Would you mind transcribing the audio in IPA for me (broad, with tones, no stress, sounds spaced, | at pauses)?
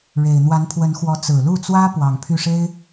ɻ e˨˩ ɪ̯ n̪ w a˧˥ n pʰ w ə˧˥ n x w ɔ˧˥ t͡s ɹ̩˨˩ l u˥˩ t͡s w ä˥ p w ɑ˨˩ ŋ pʰ y˥˩ ʂ e˥ ɪ̯